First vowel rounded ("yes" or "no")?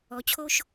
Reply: yes